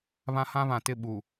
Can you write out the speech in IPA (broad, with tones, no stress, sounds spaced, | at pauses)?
β ã˦ h ã˦ β ã˨ t ɪ˦˨ ɓ u˨